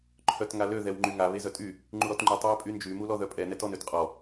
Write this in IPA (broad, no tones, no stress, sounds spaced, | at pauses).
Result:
ǃʰ œ t ŋ a l ø ð ɛ w ŋ͡ǃ y ŋ a β e z œ tʼ y | ŋ͡ǃ u ɾ ɔ t ŋ͡ǃ y tˤ w e pʼ y n d͡ʒ y m u l ɔ ð œ pʼ ɛ n ɛ t ɔ n ø t qʼ ɔ